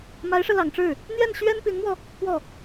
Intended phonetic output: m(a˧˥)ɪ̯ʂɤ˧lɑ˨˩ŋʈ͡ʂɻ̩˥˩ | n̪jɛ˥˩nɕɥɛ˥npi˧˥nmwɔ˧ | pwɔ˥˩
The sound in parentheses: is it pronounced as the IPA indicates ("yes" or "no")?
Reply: yes